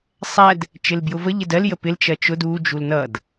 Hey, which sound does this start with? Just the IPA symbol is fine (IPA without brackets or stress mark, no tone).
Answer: sˤ